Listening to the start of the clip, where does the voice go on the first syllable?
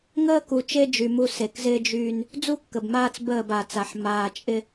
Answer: high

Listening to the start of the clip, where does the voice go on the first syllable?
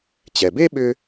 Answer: low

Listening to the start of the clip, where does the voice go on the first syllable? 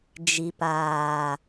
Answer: low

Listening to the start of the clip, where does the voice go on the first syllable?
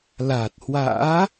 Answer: low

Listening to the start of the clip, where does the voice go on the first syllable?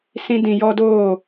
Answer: high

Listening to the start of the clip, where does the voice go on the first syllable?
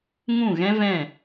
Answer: falling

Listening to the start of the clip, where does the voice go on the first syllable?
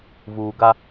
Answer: low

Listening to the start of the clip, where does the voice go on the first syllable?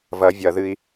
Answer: rising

